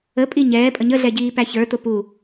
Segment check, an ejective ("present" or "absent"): present